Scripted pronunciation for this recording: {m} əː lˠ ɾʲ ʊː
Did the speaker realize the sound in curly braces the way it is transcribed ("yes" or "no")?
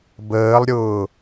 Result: no